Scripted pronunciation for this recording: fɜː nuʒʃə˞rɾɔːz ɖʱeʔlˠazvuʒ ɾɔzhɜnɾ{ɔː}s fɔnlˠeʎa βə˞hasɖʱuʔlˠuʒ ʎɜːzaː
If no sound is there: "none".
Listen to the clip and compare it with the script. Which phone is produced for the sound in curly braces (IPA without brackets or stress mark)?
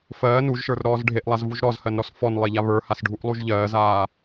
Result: ɔ